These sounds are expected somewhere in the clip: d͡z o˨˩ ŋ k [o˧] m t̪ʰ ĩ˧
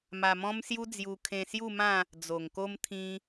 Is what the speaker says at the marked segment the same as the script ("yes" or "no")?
yes